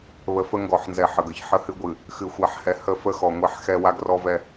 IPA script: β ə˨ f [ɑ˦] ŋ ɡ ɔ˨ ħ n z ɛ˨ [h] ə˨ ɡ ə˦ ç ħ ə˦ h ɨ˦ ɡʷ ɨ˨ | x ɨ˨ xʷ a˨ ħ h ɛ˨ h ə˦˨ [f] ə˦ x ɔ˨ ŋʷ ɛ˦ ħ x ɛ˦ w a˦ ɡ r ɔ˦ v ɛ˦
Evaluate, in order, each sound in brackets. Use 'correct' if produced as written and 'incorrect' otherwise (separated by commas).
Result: incorrect, incorrect, correct